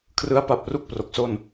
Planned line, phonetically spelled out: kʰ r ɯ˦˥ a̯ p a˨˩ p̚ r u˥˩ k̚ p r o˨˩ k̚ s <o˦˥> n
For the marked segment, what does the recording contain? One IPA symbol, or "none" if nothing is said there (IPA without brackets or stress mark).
o˥˩